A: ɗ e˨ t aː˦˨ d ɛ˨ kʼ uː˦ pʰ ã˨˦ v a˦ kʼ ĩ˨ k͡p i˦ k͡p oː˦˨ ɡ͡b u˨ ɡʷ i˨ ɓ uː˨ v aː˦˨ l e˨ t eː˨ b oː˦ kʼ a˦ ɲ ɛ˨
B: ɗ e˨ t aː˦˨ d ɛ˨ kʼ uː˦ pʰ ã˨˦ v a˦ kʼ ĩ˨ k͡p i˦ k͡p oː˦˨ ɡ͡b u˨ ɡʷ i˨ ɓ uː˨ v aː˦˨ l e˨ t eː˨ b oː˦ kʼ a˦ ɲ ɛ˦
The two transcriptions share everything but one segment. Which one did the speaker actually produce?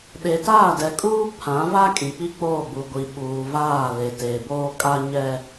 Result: B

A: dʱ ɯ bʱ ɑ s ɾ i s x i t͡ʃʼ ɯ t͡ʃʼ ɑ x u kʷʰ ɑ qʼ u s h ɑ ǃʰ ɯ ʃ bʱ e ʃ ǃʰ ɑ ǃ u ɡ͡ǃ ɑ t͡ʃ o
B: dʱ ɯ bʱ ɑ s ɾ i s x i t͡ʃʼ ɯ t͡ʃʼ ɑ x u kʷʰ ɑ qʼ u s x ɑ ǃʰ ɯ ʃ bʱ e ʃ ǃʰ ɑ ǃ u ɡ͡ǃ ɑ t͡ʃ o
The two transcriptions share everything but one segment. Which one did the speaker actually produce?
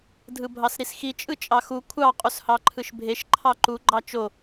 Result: A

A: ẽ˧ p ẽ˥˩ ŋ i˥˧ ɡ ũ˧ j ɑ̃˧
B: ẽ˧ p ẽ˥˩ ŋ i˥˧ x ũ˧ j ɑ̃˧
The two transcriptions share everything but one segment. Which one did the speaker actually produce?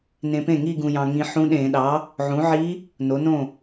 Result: A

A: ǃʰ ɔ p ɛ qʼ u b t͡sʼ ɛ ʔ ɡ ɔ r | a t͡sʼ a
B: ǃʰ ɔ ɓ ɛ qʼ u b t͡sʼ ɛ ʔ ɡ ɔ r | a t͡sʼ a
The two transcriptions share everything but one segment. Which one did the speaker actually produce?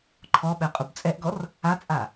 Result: B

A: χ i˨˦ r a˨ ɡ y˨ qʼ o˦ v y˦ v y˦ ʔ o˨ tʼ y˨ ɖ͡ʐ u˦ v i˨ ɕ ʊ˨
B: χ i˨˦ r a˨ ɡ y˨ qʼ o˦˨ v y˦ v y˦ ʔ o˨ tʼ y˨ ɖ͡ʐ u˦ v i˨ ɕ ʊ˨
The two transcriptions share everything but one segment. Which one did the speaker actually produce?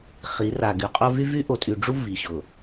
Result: A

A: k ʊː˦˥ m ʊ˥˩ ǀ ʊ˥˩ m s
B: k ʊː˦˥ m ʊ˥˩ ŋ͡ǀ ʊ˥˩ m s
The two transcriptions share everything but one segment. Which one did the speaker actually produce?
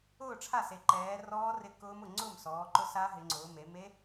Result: B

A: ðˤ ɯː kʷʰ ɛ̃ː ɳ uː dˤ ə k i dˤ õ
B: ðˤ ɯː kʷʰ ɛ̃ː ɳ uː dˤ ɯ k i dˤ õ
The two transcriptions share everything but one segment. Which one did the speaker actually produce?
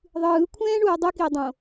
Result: B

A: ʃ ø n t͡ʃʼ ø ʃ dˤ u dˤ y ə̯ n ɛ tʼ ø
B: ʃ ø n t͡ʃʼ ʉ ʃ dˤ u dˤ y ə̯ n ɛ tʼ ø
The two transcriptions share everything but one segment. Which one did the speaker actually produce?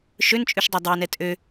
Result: B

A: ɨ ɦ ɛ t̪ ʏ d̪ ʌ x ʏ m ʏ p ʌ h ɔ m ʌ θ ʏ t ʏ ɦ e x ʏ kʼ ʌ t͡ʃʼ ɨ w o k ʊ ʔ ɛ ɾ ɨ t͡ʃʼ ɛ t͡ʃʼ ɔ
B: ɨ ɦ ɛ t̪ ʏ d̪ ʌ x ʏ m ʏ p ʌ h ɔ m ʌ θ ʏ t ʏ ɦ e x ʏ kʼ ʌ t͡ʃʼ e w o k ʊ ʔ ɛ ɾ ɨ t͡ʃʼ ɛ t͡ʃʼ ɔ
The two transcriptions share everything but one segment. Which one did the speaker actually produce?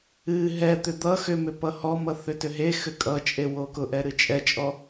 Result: B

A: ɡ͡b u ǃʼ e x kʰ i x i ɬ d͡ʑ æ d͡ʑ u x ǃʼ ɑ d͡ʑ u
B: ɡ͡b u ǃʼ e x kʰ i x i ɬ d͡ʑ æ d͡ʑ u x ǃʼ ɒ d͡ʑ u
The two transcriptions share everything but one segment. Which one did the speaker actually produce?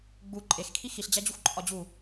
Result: B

